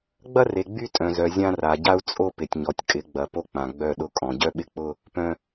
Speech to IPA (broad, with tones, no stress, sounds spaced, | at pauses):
ɡ͡b ɐ˦ r e˨ ɡ͡b y˦ tʼ œ̃˨ z œ˨ zʲ ã˦ r a˨ ɟ a˦ u̯ t͡sʼ o˦ p ɪ˨ tʲ ɲ ɔ˨ tʲ kʼ ɪ˨˦ ɡ͡b ɐ˨ p o˦ k͡p ã˨ ɡ͡b œ˦˨ ɗ ʊ˦ kʼ ɔ̃˨ ɟ œ˦ ɓ ɪ˦ k͡p ʊ˦ | p œ̃˨